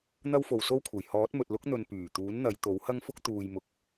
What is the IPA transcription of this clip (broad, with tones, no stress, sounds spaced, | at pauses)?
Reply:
n̪ ɐ˥ w f o˨ w s o˥ w kʷʰ ɐ˨˩ j h ɔː˨˥ t̚ m ɵ˨ t̚ l ʊ˥ k̚ n̪ ɵ˨ n p yː˨˩ t̪ uː˨˥ n n̪ ɐ˨˧ j t̪ o˨˥ w h ɐ˥ ŋ f ʊ˥ k̚ t̪ uː˨ j m ʊ˨ k̚